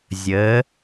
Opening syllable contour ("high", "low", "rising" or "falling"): rising